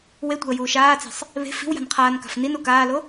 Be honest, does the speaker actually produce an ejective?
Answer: no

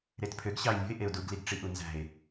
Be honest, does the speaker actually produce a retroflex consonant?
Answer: yes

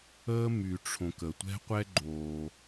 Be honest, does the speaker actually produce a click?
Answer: yes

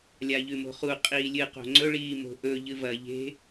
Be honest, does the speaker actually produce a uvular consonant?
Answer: yes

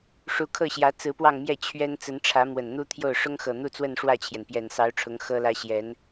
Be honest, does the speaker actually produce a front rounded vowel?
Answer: no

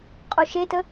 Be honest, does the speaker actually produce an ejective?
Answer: yes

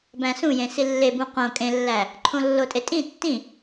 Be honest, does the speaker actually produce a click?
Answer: yes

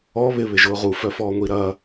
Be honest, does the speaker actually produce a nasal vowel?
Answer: no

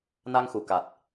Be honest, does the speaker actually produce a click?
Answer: no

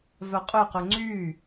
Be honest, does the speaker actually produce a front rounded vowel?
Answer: yes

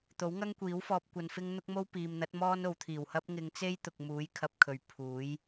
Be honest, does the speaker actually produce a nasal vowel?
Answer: no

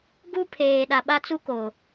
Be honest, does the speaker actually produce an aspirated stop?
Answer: yes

